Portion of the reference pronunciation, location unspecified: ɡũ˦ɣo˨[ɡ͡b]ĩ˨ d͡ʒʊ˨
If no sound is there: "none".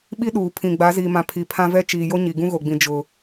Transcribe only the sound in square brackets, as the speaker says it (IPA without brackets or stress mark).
ɡ͡b